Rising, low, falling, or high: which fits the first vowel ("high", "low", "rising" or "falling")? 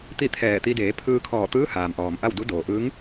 falling